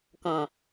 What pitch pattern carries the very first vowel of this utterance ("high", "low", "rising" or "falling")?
low